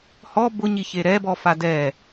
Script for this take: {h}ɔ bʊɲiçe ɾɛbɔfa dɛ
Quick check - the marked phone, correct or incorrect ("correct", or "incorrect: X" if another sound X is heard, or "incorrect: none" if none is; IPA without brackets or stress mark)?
correct